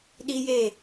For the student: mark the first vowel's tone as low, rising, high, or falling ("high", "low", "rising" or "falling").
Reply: high